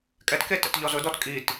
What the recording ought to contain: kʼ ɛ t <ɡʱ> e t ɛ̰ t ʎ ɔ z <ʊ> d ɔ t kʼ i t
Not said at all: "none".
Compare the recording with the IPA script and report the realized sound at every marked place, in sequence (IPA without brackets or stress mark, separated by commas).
k, ʊ